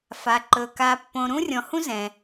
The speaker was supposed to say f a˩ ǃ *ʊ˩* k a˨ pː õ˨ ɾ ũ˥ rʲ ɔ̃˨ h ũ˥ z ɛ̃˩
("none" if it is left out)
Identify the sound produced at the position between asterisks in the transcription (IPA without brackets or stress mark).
ɵ˩